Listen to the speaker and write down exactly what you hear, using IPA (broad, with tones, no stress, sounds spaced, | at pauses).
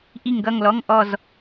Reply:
ʔ i˧˩ ŋ ɡ ʌ˧˩ ŋ l ɔ˩˧˩ ŋ ʔ ɔ˧˩ z